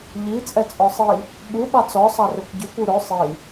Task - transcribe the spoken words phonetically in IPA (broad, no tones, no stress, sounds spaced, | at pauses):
ʎ i t͡sʼ ɛ t͡sʼ ɔ sˤ i | ɓ u ɓ ɑ t͡s ɔ sˤ ɑ r ø kʷ ɟ y kʷ u ɾ ɵ sˤ i